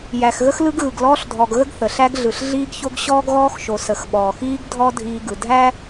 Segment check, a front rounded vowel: absent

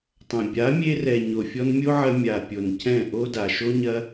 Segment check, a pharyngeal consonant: present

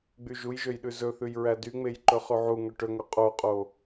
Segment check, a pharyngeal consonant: present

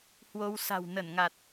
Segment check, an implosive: absent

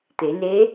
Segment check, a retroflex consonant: absent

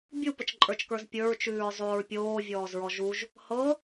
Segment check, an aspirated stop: absent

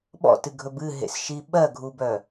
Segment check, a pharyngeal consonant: absent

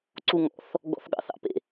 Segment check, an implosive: present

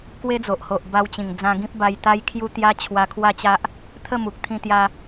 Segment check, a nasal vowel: present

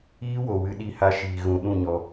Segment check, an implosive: present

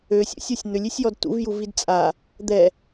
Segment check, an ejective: present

